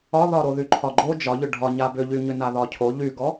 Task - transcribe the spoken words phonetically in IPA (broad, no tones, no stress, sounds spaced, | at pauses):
ɒ ð ɒ ɾ o ð y ǃʰ ɒ ɡ͡ǃ o d͡ʒ ɒ ʎ ʏ ɖʱ ɒ ɲ a b ʏ ʎ y ɲ ʏ n a ð ɒ cʰ o ʎ y ɡ ɔ